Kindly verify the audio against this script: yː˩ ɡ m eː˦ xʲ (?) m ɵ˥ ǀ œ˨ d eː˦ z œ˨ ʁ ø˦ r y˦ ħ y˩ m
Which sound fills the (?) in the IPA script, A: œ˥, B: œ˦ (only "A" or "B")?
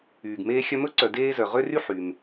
B